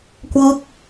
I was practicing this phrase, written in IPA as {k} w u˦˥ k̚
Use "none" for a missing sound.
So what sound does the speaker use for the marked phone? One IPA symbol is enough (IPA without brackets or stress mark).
k